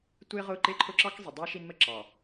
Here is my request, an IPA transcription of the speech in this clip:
tʷ ɪː˦ ʁ ʊː˦˨ ǃ ɪː˦ ǃʰ ʊ˦ ǁ ɑ˦ k zˤ ɪ˨ dˤ ɑ˦ ʃ i˦ n m ə˦ ǁ ɑ˨

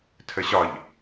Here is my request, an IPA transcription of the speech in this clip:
tʰ ə ɕ ɒ ʎ

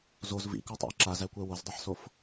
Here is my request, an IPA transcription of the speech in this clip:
z o z v ḭ k ɔ tˤ a̰ ɪ̯ ǁ a z æ kʷ ɛ w o z dˤ i ħ s o f

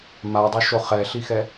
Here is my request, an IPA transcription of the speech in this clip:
m a dˤ o ʃ o χ ɛ ɬ i x ɛ

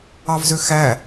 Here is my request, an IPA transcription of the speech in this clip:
ɑ v z ø x æ

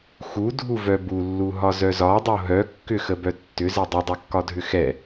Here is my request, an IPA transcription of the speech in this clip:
x u dʱ u v œ b u lː u ɦ ɒ z œ z ɒ dˤ o ɦ œ kː ʏ x ə b œ tː ʏ z ɛ dˤ ə dˤ œ kː ɒ dʱ ʏ x ɛ

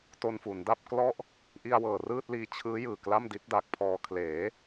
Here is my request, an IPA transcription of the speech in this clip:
t o˧ n f u˩˦ n d a˥˩ p̚ k l ɔ˦˥ ʔ | ʔ i˧ a̯ w ɤː˨˩ r ɯː˥˩ t̚ l iː˧ t͡ɕʰ ɯː˦˥ j ɯː˨˩ k l a˥˩ m d i˦˥ t̚ d a˨˩ k̚ pʰ ɔː˧ kʰ l eː˩˦

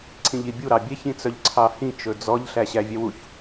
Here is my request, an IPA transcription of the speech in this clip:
ǀʰ ĩ ʎ i bʲ u ɾ ɑ bʲ ɛ ç ĩ t͡s œ ʎ ǀʰ ɑ h ĩ t͡ʃ ɵ d͡z ɔ ʎ ɬ æ ɕ æ vʲ ɛ w u ç

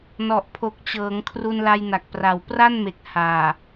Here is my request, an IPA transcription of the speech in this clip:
n ɔ˨˩ ʔ pʰ o˨˩ k̚ t͡ɕ ɤː˩˦ ŋ kʰ r u˧ n l a˧ j n a˨˩ k̚ p r a˨˩ w p r a˥˩ n m e˨˩ k̚ h aː˨˩

